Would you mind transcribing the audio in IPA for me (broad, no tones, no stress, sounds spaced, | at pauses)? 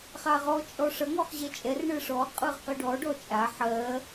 χ a ʁ ɔ t͡ʃʼ ɔ ʂ ʌ ŋ ɔ χ ʑ ɛ t͡ʃʼ ɛ r ɳ ɯ ʂ ɔ qʼ ɯ ʁ q ɯ ɖ ɔ ɖ ɔ t͡ʃʼ a ħ ɜ